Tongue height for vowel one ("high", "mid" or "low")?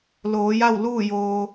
mid